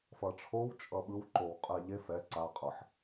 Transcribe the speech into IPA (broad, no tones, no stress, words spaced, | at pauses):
fʌʈ͡ʂʰow t͡ʃʼʌɓɯw ǃowqʼɛʎef ɛ ǀa qʼʌħ